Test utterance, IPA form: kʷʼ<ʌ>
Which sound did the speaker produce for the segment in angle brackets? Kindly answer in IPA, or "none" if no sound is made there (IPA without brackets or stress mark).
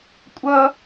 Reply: ʌ